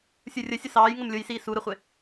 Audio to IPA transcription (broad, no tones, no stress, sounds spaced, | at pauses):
sʲ u rʲ ə sʲ ʊ s ɑː j ŋ ə m lʲ ʊ j s iː s u ɾ ə χʷ ɪ